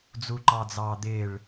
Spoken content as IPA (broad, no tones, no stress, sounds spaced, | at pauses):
d͡z u ǃ ɑ d͡z ɑː d̪ ɪː ɭ